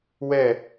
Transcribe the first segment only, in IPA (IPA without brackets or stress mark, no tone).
w